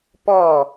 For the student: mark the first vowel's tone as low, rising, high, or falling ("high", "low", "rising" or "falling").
falling